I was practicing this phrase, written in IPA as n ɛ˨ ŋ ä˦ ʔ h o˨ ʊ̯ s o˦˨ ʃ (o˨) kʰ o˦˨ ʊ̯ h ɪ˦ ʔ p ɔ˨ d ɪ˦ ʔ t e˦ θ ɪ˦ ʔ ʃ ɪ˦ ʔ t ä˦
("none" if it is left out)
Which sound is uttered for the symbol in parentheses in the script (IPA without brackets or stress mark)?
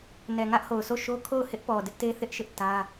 o˦